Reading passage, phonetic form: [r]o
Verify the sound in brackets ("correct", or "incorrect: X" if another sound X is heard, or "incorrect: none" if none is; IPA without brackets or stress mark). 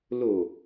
incorrect: l